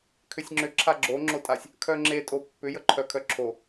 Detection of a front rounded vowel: present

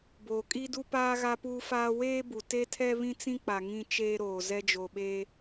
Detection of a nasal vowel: present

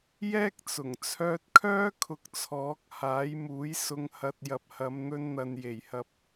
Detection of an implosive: absent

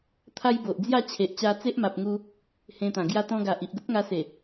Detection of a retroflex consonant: absent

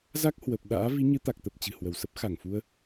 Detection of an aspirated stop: absent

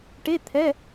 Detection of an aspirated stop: present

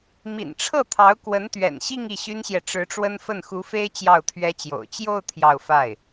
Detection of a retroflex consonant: present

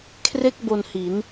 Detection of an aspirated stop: present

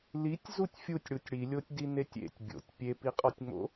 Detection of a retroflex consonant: present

